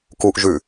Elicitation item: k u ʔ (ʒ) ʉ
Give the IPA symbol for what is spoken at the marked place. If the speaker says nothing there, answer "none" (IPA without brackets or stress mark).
ʒ